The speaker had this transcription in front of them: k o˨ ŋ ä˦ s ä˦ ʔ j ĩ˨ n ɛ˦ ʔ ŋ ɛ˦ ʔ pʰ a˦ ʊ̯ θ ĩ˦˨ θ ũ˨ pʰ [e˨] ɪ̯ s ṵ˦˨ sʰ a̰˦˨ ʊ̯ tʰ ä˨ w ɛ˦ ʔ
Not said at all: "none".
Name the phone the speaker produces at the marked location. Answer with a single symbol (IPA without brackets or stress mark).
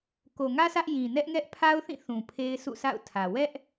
e˦